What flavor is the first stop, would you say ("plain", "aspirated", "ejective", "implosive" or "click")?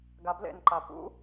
plain